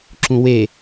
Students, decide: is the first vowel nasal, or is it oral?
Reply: nasal